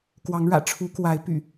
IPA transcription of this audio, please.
kwɑ˨˦ŋɻä̰˨˩ ʈ͡ʂʰu˨˦kwa˨˦ɪ̯py̰˨˩

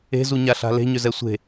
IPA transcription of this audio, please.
e̤zuɲaɬa̤ le̤ɲʏzɛ sʷe̤

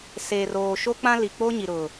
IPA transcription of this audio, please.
seː˨roː˨ ʃo˦k͡pã˦li˨k͡po˦ ɲi˨ɾʊ˨

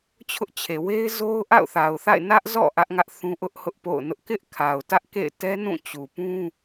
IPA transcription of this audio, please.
t͡ɕʰʊ˦ʔt͡ɕʰe˨ we˦ɪ̯zo˦ʊ̯ ʔa̰˦˨ʊ̯θa˨ʊ̯θa̰˦˨ɪ̯ nä˦ʔzɔ̰˦˨ ʔä˦ʔŋä˦ʔ θũ˦ʔʊ˦ʔ hʊ˦ʔpo̰˦˨ʊ̯nʊ˦ʔ kɪ˦ʔkʰa˨ʊ̯tä˦ʔkḛ˦˨ɪ̯ tɛ˦nũ˦˨t͡ɕu˨pũ˦

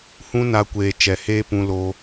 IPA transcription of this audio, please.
hũ˦na˧kʷeː˨ t͡ʃɛ˨heː˦pũ˧ lo˧

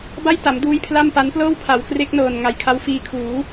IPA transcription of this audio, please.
ba˥˩jta˩˦mduː˦˥j pʰla˥˩mpa˦˥n plɤː˥˩wpʰa˩˦wkre˦˥k̚nɤː˨˩n ŋa˨˩jkʰa˦˥wfiː˧kʰuː˩˦

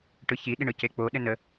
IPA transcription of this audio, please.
ʈɯçiɗi ɳɯcek͡poɗɘ nə

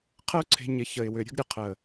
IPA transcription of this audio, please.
qʰə˦ʊ̯ǀʰe̤˧ ɲɪ˧ çə˨ɪ̯wʏ˨ ɾʲə̤˦ɡɾʲə˧qʰə˨

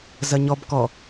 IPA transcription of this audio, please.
zɐɲɔb kɔ

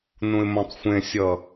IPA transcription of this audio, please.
nũɪ̯mõtˤxʷẽsʲʌ

